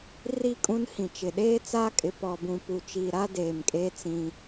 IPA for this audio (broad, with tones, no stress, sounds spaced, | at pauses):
r i˨ kʼ ũ˦ n h ĩ˨ t͡ʃ ɪ˨ ɗ eː˦ t͡s aː˦ kʼ ɪ˨ p ɔ˨ b ũ˨ p u˨ t͡ʃ iː˨ ɾ a˦ d eː˨ m kʼ eː˦ t͡s ĩ˦